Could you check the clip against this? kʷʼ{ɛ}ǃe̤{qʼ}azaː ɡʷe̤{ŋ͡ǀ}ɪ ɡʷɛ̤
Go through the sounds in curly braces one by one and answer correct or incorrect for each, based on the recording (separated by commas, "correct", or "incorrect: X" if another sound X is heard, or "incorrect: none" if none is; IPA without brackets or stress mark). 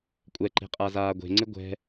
correct, correct, correct